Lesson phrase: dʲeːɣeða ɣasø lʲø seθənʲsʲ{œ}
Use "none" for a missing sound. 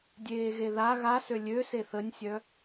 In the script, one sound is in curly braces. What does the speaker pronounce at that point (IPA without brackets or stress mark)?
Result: œ